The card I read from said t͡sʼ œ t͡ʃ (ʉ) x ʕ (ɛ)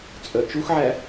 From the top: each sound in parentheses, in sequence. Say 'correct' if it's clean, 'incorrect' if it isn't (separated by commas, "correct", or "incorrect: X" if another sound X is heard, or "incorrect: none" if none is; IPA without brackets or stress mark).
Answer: incorrect: u, incorrect: æ